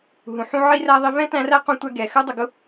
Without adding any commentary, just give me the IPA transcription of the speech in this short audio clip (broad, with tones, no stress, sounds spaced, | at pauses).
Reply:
ɦ ũ˨ ħ ũ˦ ʕ i˦ r æ˦ ðˤ i˦ v ɛ̃˥ t æ̃˦ r æ˥ q ũ˦ tʷ æ˦ ɡ ɛ˨ x ɜ˥ dˤ ʊ˨ ɡ ʊ˦